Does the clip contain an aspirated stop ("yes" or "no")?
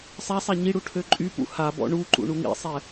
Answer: yes